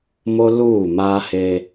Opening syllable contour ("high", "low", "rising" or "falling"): high